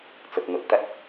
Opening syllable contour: low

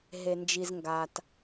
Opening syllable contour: low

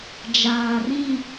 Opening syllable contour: low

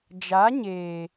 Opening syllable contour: rising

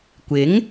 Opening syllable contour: rising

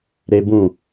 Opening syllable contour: high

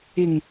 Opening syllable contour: low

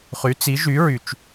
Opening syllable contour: rising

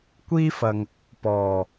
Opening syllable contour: high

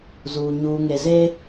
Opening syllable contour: low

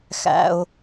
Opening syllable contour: low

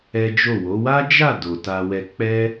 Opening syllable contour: high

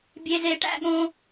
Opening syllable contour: low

